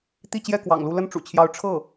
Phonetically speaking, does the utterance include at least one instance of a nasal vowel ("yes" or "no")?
no